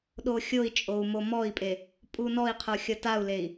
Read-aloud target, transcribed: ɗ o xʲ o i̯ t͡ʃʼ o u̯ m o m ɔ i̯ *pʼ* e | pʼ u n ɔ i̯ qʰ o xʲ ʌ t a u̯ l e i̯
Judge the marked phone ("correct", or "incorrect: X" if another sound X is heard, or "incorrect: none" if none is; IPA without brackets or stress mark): correct